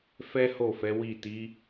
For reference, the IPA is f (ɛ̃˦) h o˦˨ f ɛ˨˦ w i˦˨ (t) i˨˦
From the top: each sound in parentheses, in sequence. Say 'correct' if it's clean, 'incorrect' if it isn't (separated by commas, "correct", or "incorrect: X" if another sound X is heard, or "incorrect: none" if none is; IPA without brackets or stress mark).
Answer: incorrect: ɛ˦, correct